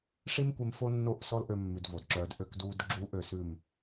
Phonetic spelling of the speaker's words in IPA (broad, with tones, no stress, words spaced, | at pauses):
ʂi˦mkʷe˧m fo˦nːo˦˨ʔsɔ˦l ʔø˧ mːʉ˨d vo˨dǁœː˧d ʔø˧kduː˧d ɡ͡ǁuː˦ʔø˨s ʉ˦˨m